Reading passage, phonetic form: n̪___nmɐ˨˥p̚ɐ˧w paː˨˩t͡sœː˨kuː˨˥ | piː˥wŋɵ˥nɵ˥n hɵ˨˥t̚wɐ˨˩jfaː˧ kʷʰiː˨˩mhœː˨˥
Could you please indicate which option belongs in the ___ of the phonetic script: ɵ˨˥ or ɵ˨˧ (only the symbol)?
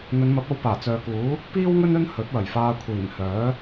ɵ˨˧